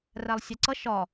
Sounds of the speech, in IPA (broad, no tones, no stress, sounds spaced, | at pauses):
r æ lˠ sʲ æ ǀ ʌ ʃ ɒ